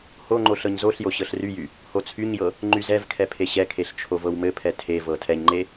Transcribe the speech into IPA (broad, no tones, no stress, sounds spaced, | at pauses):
h o ŋ͡ǃ o ɬ ɤ ɲ z o ɬ j o ɕ ɤ ɬ r y j y | h o t͡sʰ y ɲ j ɤ | ŋ͡ǃ y z ɛ v kʰ ɛ pʰ e ɕ ɛ kʰ e ɬ t͡ʃʰ o v ɤ w m ɘ pʰ ɛ tʰ e v ɤ tʰ ɛ ɲ ŋ͡ǃ e